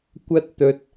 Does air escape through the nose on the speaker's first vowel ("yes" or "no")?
no